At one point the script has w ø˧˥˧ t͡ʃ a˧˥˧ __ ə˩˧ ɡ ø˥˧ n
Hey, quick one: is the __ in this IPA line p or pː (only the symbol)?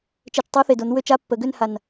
pː